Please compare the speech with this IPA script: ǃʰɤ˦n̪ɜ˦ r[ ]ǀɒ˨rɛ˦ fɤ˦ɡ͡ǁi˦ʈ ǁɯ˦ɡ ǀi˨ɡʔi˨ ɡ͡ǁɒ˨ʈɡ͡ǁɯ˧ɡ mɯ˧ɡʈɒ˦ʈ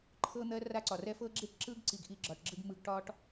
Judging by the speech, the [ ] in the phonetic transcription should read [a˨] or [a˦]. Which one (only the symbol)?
a˦